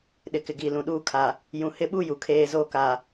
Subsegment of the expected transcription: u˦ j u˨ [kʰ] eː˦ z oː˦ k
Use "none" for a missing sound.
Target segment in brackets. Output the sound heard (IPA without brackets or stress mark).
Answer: kʰ